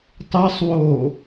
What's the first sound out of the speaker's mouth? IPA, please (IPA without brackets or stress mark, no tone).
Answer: tˤ